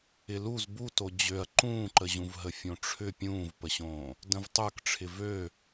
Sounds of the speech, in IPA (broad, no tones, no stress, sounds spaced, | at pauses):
ɪ l u z b u t o d͡ʑ ø ɐ̯ ǃ ũː ǃ ə ʑ ũ v ɦ ə fʲ õ ʈ͡ʂʰ ʏ pʲ ũː v p ə ɕ õː | d ə̃ v tˤ ə˞ k ʈ͡ʂʰ ɪ v ø